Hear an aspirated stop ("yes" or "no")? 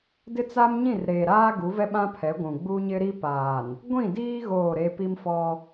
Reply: yes